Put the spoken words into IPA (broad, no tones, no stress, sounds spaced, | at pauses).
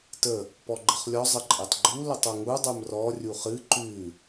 t ə | p ɔ ɡ͡ǃ ə χ lʲ ɔ zˤ ə ǃʼ e tˤ ɡ͡ǃ u l ə tˤ o ŋ u dˤ ə˞ m r ɔ rʲ u χ ɨ ǃ ʉ